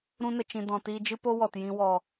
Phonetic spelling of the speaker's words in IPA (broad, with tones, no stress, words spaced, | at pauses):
ɾũ˧nə˨ t͡ʃĩ˨dɔ̃˨tiː˧d͡ʒɨ˦ po˦wɔ˨tjĩ˧ wɔ˨